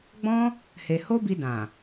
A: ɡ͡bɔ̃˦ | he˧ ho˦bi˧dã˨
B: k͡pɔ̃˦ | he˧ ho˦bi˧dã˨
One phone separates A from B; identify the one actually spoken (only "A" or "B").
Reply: A